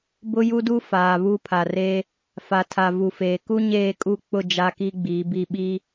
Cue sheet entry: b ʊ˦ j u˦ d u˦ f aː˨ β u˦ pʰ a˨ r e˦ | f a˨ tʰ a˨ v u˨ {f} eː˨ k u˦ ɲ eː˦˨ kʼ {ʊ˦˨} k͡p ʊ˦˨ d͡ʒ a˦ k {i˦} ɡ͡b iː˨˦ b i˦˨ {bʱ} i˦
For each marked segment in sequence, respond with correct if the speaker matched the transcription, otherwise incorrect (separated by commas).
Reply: correct, incorrect, correct, incorrect